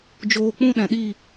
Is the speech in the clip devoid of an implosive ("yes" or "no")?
no